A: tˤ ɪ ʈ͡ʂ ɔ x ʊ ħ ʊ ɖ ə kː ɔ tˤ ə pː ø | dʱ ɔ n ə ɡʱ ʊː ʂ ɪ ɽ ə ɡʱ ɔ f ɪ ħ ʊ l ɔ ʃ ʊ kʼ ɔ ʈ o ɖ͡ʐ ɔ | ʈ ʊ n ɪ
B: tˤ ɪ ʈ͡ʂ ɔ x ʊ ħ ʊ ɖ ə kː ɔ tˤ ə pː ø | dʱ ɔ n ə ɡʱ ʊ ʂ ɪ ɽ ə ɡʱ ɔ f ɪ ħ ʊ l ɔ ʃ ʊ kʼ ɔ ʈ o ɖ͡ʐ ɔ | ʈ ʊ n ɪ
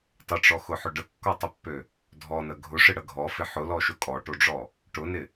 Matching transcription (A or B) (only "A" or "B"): B